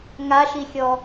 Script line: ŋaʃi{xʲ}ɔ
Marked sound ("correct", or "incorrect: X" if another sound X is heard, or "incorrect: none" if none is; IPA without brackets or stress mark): correct